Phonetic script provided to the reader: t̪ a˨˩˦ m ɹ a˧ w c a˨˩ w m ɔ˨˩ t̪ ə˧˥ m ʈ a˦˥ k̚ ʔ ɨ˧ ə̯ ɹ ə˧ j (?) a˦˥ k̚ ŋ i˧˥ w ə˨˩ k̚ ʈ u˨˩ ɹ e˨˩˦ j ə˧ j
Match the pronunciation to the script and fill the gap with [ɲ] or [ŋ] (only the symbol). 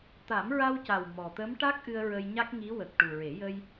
ɲ